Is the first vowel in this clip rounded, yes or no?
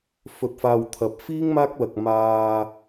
yes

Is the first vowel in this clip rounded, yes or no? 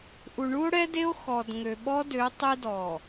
yes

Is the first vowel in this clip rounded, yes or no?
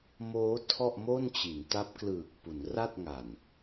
yes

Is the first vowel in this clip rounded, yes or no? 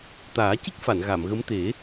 no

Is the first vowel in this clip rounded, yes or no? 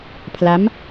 no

